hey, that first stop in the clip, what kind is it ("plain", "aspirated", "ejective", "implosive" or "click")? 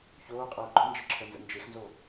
ejective